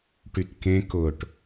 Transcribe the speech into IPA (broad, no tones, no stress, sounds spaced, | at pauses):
ʈ y t k ẽ k ʊ ʈ